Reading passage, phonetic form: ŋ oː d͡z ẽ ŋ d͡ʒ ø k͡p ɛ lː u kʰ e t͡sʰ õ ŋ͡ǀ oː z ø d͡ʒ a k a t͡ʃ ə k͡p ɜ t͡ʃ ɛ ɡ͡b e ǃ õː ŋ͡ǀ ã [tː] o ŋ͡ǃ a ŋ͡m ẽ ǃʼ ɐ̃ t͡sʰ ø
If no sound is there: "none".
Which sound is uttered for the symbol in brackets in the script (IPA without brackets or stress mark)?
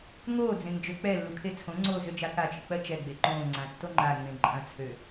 tː